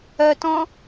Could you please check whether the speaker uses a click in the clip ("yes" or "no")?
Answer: no